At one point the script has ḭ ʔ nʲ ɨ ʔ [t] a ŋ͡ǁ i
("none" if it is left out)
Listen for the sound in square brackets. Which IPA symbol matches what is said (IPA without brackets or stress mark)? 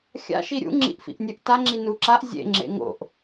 t